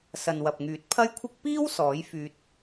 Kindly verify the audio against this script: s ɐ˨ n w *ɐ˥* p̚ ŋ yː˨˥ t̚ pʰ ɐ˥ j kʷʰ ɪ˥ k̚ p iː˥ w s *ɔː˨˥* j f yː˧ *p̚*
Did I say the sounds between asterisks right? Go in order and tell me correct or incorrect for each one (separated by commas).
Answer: incorrect, correct, incorrect